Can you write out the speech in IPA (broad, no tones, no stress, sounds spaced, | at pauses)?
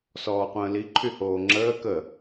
s ɔː qʷ ə̃ː l i ǃʰ y h oː ŋ͡ǁ əː k ə